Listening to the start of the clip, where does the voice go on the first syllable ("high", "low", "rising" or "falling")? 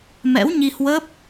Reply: rising